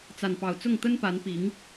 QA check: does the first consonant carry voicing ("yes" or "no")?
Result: no